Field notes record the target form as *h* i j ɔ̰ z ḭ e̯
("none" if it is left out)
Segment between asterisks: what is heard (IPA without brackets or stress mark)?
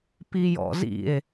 p